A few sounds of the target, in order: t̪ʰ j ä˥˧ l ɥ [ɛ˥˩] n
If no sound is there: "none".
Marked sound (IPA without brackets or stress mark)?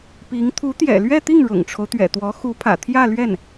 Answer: ɛ˥˩